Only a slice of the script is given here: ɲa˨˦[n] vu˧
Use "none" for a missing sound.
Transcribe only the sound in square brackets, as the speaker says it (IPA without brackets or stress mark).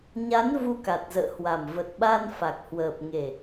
n